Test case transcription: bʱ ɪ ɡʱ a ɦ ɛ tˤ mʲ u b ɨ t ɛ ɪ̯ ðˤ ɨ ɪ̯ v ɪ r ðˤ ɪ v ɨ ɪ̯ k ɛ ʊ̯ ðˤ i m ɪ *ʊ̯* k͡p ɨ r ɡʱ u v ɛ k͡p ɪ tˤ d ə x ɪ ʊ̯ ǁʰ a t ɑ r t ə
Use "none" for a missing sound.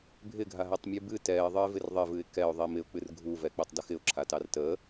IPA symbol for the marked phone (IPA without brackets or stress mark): ʊ̯